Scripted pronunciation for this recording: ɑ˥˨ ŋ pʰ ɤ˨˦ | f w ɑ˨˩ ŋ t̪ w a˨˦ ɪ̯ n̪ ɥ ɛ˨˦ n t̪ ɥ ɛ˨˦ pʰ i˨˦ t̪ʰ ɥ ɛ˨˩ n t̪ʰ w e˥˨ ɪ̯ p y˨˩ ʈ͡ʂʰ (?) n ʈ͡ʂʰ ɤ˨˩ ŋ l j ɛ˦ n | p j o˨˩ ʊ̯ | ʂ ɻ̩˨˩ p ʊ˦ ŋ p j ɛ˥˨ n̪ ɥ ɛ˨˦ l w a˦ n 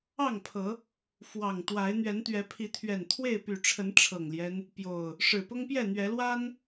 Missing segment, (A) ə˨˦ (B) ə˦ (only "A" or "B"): A